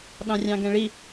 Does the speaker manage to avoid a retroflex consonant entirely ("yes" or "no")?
no